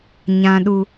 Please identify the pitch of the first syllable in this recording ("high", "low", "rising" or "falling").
low